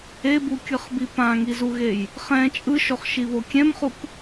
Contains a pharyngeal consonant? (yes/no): no